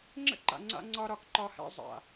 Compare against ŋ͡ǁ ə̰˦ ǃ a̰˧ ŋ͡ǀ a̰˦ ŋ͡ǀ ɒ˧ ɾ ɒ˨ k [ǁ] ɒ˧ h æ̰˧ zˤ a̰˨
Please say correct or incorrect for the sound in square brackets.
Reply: incorrect: ǃ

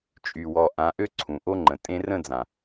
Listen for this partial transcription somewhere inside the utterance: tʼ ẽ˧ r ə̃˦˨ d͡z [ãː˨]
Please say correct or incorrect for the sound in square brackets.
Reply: incorrect: ã˨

